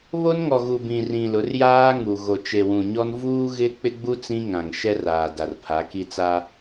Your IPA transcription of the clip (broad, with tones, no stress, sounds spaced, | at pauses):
β o˦ n ŋ ɔ˨ ɣ u˨ b ĩ˨ r ĩ˨ l ʊ˨˦ r j aː˦ ŋ u˨ ɣ o˨ t͡ʃ e˨ w ũ˨ ɲ ɔ˦ n v uː˦ ɣ ɪ˦ k͡p ɪ˦ ɡ͡b u˦ t͡s ĩ˦ ŋ ã˨ ŋ ʃ ɛ˦ r aː˨ d a˨ r pʰ a˨˦ k i˦ t͡s a˦